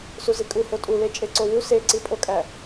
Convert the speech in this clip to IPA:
s u z i kʼ u h o tʼ u l e t͡ʃʼ e ǀ o w u s e ǀ i pʼ o kʼ æ

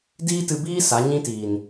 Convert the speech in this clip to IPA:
d iː˦ t ɨ˧ b iː˦ s a˨˦ ɲ ĩ˦ t iː˨ n

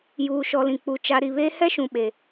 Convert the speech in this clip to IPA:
j uː˨ ʃ ɔ˨ l ĩ˨ k͡p u˨˦ t͡ʃ a˦ ɾ i˨ β eː˦ h ɛ˦ ʃ ũ˨ ɓ e˨

